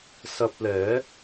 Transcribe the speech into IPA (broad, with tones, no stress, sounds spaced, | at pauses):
s ɐ˧ p̚ l ɛː˨˥